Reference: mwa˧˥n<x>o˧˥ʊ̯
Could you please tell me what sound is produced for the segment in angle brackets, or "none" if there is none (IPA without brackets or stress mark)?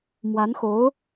x